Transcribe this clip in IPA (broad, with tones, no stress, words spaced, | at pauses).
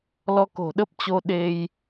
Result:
lɔ˧ko̤˨˩ɗə˦˥p̚t͡ɕo˧ ɗe˧j